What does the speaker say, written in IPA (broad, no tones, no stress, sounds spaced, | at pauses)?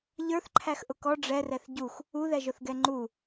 ʎ ə˞ θ ǃʰ æ x ʔ ʊ k ɔ ɖ͡ʐ ɛ r ɛ θ ɟ u x | u ð ɛ ʒ ʊ θ ɡ ɛ ŋ͡ǃ u